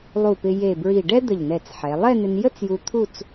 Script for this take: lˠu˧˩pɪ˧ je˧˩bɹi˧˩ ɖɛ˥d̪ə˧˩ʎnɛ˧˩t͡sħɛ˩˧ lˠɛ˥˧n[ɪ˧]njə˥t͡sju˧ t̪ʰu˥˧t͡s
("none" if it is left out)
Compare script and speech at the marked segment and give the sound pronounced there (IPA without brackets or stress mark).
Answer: ɪ˧